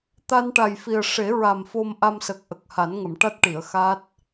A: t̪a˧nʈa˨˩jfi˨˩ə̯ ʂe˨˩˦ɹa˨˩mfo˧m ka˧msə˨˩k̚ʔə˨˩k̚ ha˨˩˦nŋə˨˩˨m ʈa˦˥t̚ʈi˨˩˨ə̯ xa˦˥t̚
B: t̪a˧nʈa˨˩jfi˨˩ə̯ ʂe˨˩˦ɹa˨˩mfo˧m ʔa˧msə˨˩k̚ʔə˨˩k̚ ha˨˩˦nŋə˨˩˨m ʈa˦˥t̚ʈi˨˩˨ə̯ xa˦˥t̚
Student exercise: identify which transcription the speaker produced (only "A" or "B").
B